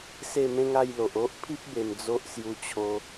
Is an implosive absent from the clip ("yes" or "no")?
yes